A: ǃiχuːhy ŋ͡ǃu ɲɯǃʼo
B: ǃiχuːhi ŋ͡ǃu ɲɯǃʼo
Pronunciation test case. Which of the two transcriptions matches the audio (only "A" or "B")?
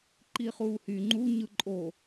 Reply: A